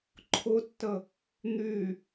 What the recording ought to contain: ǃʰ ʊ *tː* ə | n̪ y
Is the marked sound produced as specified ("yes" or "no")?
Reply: yes